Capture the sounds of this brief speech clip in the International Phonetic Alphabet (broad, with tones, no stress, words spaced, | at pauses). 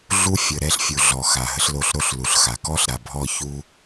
ɮu˦ fʲə˨ ɾɛ˦ɬfʲu˨ɮɔ˨ xa˨ɦə˦ɬlo˦ɬ ɾo˦ɬlu˨ɬxa˨ kɔ˦ɬɾa˨bʱɔ˦˨çu˦